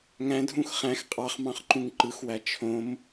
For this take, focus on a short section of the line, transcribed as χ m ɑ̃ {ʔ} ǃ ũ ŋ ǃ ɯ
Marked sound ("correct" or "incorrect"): incorrect